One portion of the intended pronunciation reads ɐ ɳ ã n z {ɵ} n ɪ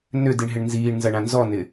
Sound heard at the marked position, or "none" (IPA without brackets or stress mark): ɔ